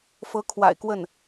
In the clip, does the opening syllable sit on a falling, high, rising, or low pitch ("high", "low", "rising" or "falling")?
rising